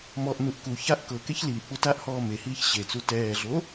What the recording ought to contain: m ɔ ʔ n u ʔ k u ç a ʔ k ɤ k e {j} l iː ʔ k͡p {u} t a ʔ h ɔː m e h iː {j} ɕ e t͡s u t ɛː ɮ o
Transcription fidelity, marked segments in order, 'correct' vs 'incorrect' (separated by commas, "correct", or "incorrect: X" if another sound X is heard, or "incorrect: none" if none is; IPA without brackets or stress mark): incorrect: ç, correct, incorrect: ç